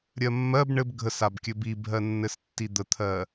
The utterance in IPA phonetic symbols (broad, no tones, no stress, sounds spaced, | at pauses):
ɾʲ ɜ mː ɜ b ɳ ɘ b ɡʱ ə s a b kʲ ɘ b i bʱ ɜ nː ɘ s tː i d̪ ə t̪ʰ ɜ